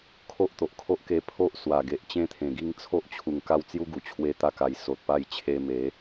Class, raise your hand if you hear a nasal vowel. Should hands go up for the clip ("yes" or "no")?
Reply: yes